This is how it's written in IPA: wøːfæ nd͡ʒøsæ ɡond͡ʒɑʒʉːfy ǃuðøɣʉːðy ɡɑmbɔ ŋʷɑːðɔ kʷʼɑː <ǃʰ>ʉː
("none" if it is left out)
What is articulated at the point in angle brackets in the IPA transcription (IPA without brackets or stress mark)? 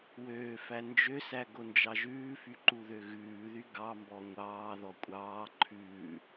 ǃʰ